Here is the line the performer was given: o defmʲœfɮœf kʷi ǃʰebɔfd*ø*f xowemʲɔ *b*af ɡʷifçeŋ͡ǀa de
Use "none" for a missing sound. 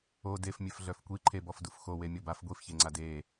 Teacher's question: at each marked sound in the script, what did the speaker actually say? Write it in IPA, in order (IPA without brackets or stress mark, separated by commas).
u, b